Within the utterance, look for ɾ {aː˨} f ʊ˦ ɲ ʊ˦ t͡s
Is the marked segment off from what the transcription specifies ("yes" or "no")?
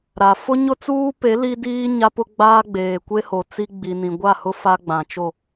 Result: yes